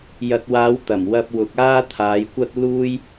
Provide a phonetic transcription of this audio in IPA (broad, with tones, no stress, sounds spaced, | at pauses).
j ɐ˨ t̚ w aː˨˧ w t̪ ɐ˨˩ m w ɐ˧ p̚ w ʊ˨˥ k̚ aː˥ t̪ʰ aː˨˧ j kʷ ɐ˥ t̚ l uː˥ j